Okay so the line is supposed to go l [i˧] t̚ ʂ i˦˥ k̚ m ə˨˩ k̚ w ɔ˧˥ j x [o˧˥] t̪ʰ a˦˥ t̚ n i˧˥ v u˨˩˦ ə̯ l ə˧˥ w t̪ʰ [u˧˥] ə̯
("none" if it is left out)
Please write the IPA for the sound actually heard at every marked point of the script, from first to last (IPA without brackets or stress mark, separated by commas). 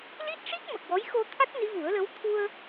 i˦˥, o˧, u˧